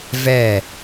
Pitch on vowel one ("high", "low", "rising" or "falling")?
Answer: falling